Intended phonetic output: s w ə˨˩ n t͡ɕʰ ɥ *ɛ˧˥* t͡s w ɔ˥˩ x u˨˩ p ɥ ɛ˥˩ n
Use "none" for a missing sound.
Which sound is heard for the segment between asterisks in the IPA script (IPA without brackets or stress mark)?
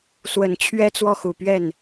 ɛ˥